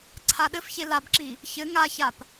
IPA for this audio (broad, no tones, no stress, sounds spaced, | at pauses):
ǀʰ a ɗ ɘ f ç e l a b ǁ i | ç ɘ ŋ a ç a p